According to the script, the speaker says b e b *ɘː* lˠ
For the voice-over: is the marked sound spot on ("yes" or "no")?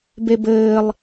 yes